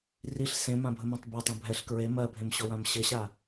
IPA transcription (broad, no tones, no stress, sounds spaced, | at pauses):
r i ɬ s ẽ m ã bʱ ə m ã tˤ b a tˤ ã bʱ ɛ ɬ k ɹ e m ɜ bʱ ẽ m ɕ ɔ w ã m ɕ ɘ ɕ a